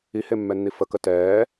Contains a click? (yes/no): no